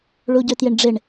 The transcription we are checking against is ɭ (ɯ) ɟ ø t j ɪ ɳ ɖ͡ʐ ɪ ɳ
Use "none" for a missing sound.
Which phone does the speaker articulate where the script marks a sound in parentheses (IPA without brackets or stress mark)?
u